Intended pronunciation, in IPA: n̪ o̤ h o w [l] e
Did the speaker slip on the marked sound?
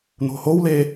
no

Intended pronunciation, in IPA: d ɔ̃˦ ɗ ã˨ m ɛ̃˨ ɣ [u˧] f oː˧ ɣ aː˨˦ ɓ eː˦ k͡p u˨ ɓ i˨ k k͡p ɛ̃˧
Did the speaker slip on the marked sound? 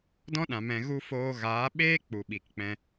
no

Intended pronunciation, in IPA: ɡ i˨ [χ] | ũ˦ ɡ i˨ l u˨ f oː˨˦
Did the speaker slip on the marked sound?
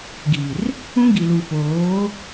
yes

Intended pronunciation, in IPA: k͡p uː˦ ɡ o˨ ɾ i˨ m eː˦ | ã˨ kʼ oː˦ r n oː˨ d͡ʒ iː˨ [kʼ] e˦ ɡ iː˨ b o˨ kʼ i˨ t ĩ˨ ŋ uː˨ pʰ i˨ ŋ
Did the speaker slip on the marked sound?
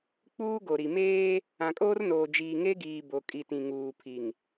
yes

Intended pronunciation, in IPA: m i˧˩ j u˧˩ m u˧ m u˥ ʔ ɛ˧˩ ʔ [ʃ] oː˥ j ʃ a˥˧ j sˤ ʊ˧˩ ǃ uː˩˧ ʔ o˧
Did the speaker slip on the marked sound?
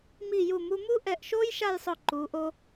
no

